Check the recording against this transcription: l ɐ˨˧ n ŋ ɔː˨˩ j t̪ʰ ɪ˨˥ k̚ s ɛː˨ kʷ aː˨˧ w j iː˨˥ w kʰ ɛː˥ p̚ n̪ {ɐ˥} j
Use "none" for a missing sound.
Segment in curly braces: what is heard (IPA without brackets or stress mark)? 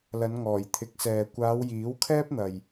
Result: ɐ˨